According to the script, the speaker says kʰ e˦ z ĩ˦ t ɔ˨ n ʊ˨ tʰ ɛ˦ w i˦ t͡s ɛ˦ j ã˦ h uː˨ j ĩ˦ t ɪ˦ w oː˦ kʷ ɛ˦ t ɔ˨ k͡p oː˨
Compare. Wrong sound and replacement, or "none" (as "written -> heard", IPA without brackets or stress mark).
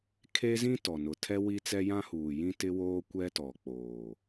none